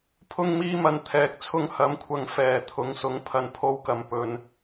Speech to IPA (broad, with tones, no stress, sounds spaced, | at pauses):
pʰ ʊ˧ ŋ m iː˧ m ɐ˨ n t̪ʰ ɛː˨ k̚ t͡sʰ ʊ˧ ŋ h ɐ˨˥ m kʷʰ ɐ˨ ŋ f ɛː˨˩ t̪ʰ ʊ˨˥ ŋ s ʊ˨˥ ŋ pʰ ɐ˨ n pʰ o˧ w k ɐ˨ m p ɵ˨ n